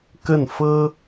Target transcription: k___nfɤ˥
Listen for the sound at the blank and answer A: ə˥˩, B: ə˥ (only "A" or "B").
A